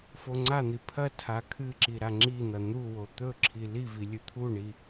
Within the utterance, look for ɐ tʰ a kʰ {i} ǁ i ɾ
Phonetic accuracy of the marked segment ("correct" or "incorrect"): incorrect